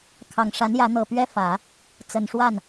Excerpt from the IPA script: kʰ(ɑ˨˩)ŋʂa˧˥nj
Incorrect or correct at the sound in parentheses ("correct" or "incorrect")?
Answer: correct